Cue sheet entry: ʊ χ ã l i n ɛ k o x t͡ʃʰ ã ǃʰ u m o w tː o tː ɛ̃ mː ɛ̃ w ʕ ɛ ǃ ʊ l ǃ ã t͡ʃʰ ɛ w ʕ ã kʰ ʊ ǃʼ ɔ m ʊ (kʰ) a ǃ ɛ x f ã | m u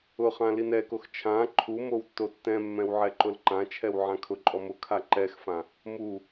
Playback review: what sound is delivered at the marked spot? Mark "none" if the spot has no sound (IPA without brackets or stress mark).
kʰ